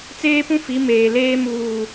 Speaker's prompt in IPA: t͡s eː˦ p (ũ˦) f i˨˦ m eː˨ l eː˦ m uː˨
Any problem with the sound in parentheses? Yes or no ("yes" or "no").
no